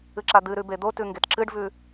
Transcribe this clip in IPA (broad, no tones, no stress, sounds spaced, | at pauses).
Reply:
ɨ ǁ a d̪ ɨ ɾ ʉ b e d̪ o t ʉ ŋ ɡ e t ǁ ɨ ɖ v ʉ